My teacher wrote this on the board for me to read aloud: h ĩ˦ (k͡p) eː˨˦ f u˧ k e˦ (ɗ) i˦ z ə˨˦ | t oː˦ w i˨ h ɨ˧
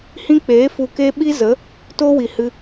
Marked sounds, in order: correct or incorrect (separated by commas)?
correct, incorrect